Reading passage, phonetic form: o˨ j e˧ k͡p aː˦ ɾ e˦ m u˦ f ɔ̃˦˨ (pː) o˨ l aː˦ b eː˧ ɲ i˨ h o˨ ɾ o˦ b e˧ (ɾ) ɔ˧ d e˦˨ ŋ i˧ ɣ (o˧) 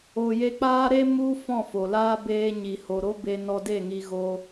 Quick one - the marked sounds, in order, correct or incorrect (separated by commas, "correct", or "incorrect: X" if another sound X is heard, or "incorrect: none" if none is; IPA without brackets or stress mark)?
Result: incorrect: f, incorrect: n, correct